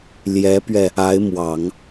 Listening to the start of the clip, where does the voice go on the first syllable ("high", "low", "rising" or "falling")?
rising